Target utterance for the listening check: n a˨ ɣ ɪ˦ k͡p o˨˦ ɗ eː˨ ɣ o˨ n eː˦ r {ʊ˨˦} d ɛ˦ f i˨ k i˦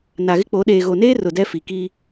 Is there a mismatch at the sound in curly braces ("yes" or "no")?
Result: yes